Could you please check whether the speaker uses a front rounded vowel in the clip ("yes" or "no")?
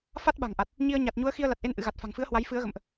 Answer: no